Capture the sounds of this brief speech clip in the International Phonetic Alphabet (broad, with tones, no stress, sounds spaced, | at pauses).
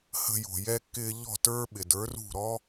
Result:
h ə̤˧ j o̤˩ j ɛ˧ kː ɪː˧ ʎ ɔ̤˥˩ t ə˞˥ ɓ ɪ˩ d ə˞˩˥ r ṳ˥˩ ɾ ɔ˥